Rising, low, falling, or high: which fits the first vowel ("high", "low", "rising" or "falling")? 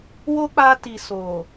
high